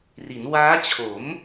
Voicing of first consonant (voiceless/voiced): voiced